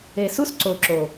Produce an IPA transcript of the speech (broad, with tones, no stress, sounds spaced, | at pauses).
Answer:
e˨ s u˦ s ǀ o˨ ǁ o˨